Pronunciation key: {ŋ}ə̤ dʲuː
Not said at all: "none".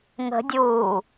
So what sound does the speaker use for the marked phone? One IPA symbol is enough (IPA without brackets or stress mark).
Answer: ŋ